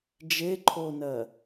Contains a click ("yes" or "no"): yes